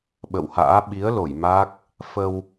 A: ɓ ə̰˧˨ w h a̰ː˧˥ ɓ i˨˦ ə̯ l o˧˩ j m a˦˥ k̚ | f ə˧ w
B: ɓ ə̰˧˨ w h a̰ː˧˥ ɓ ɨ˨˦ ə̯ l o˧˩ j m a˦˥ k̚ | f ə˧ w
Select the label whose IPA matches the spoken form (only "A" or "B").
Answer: A